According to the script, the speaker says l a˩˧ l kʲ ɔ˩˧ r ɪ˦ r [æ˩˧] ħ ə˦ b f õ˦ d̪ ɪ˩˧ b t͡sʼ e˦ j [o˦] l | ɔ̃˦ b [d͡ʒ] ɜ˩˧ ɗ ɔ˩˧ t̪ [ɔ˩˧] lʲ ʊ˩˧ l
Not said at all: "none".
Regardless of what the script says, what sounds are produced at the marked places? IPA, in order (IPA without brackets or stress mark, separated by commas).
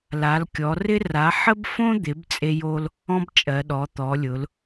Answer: a˩˧, o˦, t͡ʃʼ, ɔ˩˧